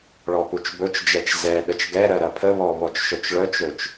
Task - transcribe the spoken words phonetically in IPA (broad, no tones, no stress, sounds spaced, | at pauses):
ɭ ɔ p u t͡ʃ b ɵ t͡ʃ d͡ʒ ɛ t͡ʃ z ɛ ɗ ə t͡ʃ ɡ ɛ ɾ ɜ ɾ ɐ pʰ ə β ɔ β ɔ t͡ʃ ʃ œ t͡ʃ ɭ œ t͡ʃ ɵ t͡ʃ